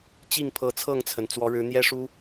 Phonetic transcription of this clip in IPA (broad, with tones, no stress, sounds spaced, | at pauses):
t͡ɕ i˥˨ ŋ pʰ ɤ˨˦ t͡sʰ ɤ˥˨ ŋ t͡sʰ ə˩ n t͡s w ɔ˨˦ ɻ ɻ̩˨˦ n̪ j ɛ˦ ʂ u˦